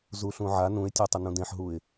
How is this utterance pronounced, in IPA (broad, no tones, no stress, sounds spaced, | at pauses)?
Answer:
z u ɬ ũ ʕ a n ũ ɪ̯ tʲ a tˤ ə n ũ d ẽ ħ ɦ u ɪ̯